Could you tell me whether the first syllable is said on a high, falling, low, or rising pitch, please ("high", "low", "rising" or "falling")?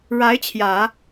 rising